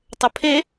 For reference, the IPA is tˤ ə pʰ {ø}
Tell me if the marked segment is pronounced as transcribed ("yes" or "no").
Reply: no